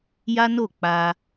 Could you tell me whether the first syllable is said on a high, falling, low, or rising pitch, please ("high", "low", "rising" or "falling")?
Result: high